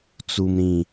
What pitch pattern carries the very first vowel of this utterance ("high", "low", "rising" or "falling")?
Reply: low